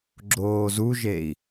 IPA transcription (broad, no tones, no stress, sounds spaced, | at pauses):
ɡ͡ǁ oː z u ʒ e i̯